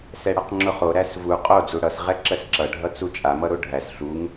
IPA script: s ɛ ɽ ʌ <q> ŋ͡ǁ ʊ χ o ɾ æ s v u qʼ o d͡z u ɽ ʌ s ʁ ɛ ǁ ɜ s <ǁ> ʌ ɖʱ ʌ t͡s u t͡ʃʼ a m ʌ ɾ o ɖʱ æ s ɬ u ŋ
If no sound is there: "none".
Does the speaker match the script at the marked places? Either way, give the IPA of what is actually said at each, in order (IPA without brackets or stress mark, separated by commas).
q, ǁ